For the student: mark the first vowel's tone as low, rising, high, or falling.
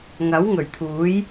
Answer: rising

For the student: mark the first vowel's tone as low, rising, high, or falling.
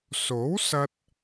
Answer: rising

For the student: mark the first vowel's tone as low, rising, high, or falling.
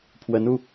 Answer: rising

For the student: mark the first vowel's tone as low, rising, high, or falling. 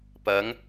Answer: rising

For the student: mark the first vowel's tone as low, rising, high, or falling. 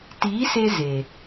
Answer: rising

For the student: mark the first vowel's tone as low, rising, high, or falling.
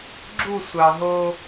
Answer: falling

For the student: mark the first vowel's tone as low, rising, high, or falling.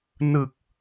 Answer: low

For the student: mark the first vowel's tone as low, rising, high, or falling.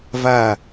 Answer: falling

